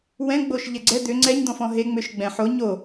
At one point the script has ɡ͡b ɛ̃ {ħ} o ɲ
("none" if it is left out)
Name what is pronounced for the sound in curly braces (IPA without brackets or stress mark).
ħ